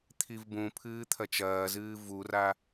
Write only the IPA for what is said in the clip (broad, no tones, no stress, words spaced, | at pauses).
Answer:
t̪ʰivbũpʰɨː t̪ʰɐt͡ʃɐːzɨː vura